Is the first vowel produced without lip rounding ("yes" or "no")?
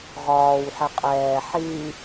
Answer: no